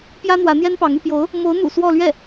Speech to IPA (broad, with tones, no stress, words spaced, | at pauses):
pjä˥n̪wä˧˥n̪jɛ˥npɑ˧˥ŋ y˥˩pjo˧˥ʊ̯ | mo˧˥ʊ̯n̪ṵ˨˩ swɔ˥˧ lɥɛ˥˩